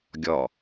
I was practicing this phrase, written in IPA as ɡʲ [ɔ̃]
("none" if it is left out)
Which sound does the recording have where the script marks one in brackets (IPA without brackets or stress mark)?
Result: ɔ